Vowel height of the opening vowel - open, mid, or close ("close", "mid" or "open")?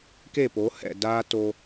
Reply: mid